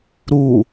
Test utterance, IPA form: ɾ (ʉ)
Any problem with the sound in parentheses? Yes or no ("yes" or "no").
yes